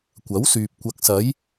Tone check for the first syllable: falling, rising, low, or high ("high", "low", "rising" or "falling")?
rising